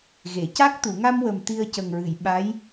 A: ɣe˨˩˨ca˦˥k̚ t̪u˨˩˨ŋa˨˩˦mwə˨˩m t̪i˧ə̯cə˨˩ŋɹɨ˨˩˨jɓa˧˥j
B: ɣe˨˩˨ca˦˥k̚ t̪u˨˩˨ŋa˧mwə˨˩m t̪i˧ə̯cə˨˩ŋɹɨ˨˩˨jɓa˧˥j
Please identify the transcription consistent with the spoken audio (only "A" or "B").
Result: B